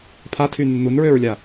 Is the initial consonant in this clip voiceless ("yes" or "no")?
yes